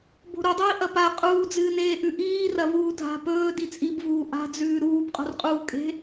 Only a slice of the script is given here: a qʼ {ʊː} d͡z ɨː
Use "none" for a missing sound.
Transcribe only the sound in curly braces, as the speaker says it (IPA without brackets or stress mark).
uː